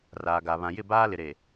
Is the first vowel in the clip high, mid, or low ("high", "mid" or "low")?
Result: low